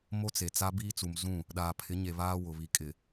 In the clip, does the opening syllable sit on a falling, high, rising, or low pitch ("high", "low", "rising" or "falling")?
high